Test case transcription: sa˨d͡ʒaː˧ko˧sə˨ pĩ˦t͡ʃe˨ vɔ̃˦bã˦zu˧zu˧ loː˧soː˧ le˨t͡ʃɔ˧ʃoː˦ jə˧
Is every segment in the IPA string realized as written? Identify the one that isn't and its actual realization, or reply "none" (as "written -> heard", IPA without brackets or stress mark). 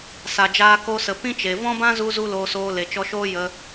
none